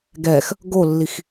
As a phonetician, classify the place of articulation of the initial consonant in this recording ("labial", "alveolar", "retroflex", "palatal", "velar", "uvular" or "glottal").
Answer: velar